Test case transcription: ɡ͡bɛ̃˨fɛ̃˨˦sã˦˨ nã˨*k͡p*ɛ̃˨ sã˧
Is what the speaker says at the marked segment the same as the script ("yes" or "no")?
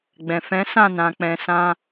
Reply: yes